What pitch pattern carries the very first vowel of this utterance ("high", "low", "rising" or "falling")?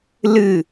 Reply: falling